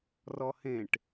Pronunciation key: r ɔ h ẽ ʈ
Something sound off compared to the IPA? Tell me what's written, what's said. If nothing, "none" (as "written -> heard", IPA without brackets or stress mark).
none